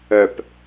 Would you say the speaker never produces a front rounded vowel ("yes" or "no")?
no